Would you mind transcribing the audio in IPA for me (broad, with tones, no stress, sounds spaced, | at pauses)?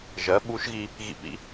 ʒ ɜ˩˥ ɓ u˧˥ ʃ ɣ i˧ | ɣ ḭ˧˩˧ p ḭ˩˥